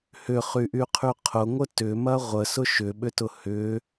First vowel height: high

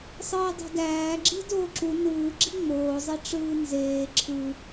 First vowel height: high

